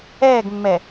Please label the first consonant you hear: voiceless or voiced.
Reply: voiced